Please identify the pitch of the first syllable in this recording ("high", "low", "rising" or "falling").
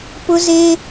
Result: high